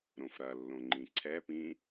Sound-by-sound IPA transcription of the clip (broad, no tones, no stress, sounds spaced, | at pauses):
ɾ õ f ɾ ɐ lː õ ŋ͡ǃ ĩ ǀʰ ɛ p ĩ